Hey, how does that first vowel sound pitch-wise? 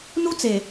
high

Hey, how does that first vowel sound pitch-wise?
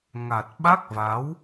low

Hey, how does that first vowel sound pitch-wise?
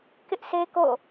high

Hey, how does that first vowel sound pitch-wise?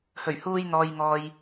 low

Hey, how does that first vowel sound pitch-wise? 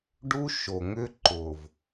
high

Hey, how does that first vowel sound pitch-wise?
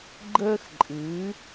high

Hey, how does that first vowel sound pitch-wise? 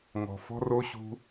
low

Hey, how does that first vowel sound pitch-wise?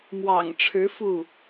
low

